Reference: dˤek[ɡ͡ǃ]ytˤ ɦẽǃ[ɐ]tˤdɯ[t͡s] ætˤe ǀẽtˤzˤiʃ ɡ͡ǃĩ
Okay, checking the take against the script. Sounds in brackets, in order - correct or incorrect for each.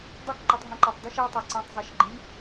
incorrect: ǃ, incorrect: æ, incorrect: ʃ

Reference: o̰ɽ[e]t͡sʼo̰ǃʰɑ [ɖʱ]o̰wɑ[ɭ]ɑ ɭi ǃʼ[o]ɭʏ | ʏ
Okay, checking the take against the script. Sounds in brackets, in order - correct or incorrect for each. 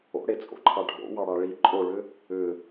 correct, correct, incorrect: ɽ, correct

